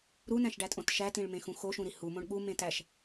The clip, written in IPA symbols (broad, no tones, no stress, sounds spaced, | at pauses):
ɾ u n æ̃ ʃ ɖ æ tʼ õ t ʃ æ t ĩ ɭ m ẽ x ũ x o ʃ ũ ɾ i h u m õ ɳ ɠ u m ẽ t æ ʃ